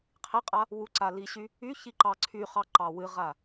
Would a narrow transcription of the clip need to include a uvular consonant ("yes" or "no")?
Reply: yes